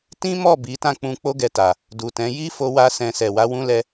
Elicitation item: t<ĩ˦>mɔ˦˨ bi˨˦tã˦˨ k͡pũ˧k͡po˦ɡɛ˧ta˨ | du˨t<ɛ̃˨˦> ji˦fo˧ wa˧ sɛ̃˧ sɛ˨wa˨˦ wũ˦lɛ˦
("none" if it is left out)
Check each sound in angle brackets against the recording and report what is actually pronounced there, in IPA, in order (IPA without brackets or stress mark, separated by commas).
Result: ĩ˦, ɛ̃˨˦